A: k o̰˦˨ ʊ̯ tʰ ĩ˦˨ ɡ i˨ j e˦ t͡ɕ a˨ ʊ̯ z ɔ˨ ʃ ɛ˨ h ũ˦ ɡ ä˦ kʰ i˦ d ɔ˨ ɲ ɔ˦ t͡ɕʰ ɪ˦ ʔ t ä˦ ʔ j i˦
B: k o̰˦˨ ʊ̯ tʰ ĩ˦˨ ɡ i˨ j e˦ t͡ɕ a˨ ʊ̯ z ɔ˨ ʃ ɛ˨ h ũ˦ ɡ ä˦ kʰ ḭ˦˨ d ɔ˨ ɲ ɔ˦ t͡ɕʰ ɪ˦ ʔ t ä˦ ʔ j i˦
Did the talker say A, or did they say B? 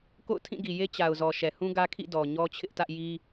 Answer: B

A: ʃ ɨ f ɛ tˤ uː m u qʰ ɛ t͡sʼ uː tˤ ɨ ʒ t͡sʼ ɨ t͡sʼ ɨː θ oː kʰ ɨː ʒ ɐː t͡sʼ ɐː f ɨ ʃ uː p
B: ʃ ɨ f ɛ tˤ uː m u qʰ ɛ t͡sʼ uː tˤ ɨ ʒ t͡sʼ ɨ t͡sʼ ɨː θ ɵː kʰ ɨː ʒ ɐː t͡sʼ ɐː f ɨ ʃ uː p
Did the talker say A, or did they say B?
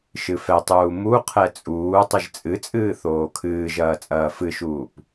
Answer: A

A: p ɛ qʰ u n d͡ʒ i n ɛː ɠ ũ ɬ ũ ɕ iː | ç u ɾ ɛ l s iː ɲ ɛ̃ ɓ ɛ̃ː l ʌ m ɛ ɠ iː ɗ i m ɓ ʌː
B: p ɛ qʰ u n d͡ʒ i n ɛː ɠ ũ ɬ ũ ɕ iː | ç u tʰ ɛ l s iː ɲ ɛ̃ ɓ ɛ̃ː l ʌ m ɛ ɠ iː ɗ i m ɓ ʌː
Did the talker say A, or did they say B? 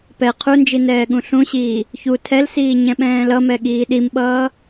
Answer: B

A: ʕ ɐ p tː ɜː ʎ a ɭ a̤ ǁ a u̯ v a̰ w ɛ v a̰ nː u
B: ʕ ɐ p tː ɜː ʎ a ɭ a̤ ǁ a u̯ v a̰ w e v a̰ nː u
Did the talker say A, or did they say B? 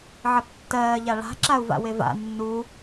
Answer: B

